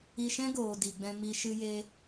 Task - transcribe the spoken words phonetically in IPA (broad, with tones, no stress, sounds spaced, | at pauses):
i˧ ʃ ɛ̃˦ ɡ oː˨ d i˨ ɡ͡b ɛ̃˧ m i˧ ʃ ɨ˧ j e˧